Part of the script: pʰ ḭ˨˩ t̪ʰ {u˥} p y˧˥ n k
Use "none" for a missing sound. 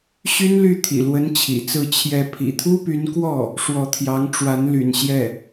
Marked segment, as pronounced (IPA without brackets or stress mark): u˥